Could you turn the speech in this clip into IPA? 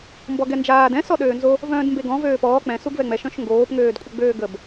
m b ɔ ɡ ɛ n d͡ʒ aː d ɛ̃ s ɔ ɗ øː n z o | v œ̃ː d m b e ɡ ɔ̃ v øː p ɔː k͡p ɛ̃ s u ɡ v ɛ ŋ͡m ɛ ʃ œ̃ ʃ ŋ ɡ oː p ŋ øː d kʷʼ ə ɡ͡b øː ɡ ə b

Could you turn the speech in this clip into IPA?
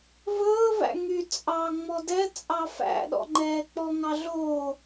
v ɵː v æ̰ ŋ y t͡sʼ ɑ ŋ͡m ɔ d ɛ t͡sʼ ɑ f æ̰ ɗ ɔ̰ ŋ͡ǃ ɛː k͡p ɔ ŋ ɑ ɮ o

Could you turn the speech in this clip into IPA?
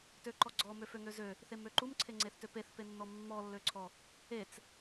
t ø ǃ ɔ ɡ͡ǀ ɔ m ø f ø ŋ ø z ø | θ e m ø ǃ u m ǀʰ e ŋ͡ǀ e θ t ø p e θ p e nː ɔ mː ɔ lː ø ǀʰ ɔ | e t͡s

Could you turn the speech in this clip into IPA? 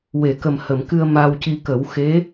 w e˨˩˨ k ə˨˩ m h ə˨˩˨ m k ɨ˧ ə̯ m a˧ w c i˧ k ə˨˩˦ w x e˧˥

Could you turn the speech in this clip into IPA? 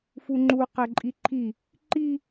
f u ŋ͡ǃ u q ɛ ǃʼ i ǃʰ i | ǃ i

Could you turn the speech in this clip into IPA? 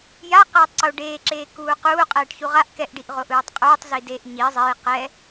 j a q ɛː tˤ ǀ o ɖ eː ǁ eː k uː q uː qʼ ɛː ʈ ç u ʁ a ʔ k ɛ ʔ ɖ i ʔ ʁ o ʔ ɯː tˤ qʼ uː tˤ z i d e ʔ ɲ i zˤ e j q ɛ

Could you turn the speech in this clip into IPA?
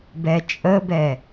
b ɛ t͡ʃʼ ə b ɛ

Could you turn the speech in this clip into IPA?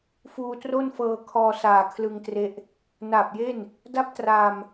f uː˧ t r o˥˩ n f ɤː˧ kʰ ɔː˧ s aː˨˩ kʰ l ɯ˧ ŋ t r e˦˥ ʔ | n aː˨˩ p̚ j e˥˩ n | d a˥˩ p̚ t r aː˧ m

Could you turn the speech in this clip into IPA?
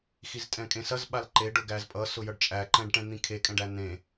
x i z tʼ ɛ̃ kʼ ẽ s ɐ z ɓ a l ǃ e ɖ ʊ ɡ æ z pʼ ʌ s ʊ j ʌ ɖ t͡ʃʼ æ ǃ ɛ̃ ɖ ʈ ɛ̃ n̪ ĩ kʰ e kʼ ɛ̃ ɖ æ n̪ ẽ

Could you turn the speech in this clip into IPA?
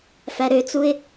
f æ ɾ ø t͡s u ɪ̯

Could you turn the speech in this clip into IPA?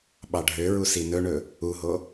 ɓ ɑ ɖʱ ø ɹ u s i n ɵ ɳ ɵ | u ɦ o

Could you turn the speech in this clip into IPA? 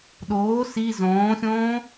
ɗ oː s i z õː xʲ õː

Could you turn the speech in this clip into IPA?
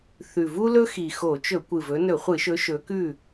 θ ʉ˨˩ v u˥ l ɵ˥ x i˨˩ x o˧˩˧ t͡ʃ ɵ˧˩˧ kʷ ɨ˨˩ v ɵ˨˦ n ɵ˧˩˧ χʷ ɨ˧˩˧ ʃ ɵ˨˦ ʃ ɵ˨˦ k ʉ˥˨

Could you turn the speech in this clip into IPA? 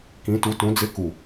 k ĩ˨˥ t u˨˥ t ũ˨˥ d͡z ɪ˧˥˧ k u˧˩

